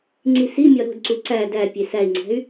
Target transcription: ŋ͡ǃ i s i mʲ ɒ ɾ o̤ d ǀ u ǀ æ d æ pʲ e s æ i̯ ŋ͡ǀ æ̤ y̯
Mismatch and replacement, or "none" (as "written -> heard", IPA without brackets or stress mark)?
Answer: ŋ͡ǃ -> ŋ͡ǀ